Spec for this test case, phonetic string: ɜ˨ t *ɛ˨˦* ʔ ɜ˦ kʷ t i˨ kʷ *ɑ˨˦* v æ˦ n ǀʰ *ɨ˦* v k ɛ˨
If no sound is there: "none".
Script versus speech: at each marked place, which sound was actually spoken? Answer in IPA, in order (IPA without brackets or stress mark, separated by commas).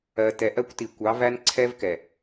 ɛ˨, ɑ˨˦, ɛ˦